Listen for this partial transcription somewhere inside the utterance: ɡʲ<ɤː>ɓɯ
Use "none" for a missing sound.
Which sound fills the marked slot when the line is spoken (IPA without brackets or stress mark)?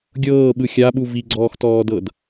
ɤː